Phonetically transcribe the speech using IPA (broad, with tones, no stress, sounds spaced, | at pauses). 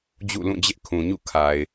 d͡ʑ ṵ˦˨ l ũ˦˨ d͡ʑ ɪ˦ ʔ kʰ ũ˨ ɲ ṵ˦˨ kʰ a˨ ɪ̯